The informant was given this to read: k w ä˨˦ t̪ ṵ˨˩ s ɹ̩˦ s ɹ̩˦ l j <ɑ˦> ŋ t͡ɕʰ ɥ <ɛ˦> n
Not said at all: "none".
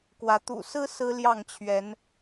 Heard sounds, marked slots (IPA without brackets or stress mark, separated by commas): ɑ˥˨, ɛ˨˦